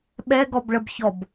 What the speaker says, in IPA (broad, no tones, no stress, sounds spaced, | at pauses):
ɓ ɛ ɡ ɔ b ɭ ə b ç ɔ b